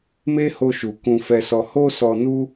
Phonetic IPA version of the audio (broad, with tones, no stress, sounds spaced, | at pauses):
m e˦ h o˧ ʃ u˨ k ũ˧ f ɛ˧ s ɔ˧ h o˦ s ɔ˧ n u˦